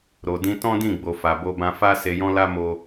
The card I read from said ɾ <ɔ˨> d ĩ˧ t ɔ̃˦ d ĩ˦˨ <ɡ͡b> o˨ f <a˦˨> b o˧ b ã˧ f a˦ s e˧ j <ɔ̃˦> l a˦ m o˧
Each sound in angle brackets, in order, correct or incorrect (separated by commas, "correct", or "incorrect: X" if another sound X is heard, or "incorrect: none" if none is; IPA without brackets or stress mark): incorrect: o˨, correct, incorrect: a˨, correct